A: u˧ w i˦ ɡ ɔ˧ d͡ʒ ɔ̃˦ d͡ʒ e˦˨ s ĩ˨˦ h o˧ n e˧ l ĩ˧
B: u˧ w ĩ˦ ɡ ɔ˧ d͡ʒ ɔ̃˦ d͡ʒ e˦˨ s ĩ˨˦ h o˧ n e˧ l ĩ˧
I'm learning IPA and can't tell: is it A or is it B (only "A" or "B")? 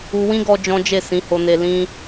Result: B